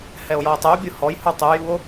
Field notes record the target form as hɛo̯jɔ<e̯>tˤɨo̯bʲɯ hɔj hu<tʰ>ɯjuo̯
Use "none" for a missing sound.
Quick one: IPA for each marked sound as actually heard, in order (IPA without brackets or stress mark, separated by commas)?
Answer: e̯, tˤ